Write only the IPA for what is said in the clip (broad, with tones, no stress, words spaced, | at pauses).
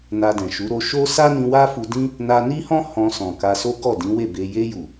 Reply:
na˧dɛ̃˨ʃu˨˦ ɾo˧ʃo˦ sa˦nĩ˧wa˦ fu˧dĩ˦ | na˧ni˦hɔ̃˦ hɔ̃˧sɔ̃˨ ka˧so˦ ɡɔ˦˨dĩ˨˦we˦˨be˧ je˧ju˨